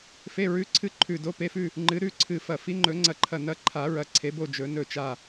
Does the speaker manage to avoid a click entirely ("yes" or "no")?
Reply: no